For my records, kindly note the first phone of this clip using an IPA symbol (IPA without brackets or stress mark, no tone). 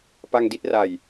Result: p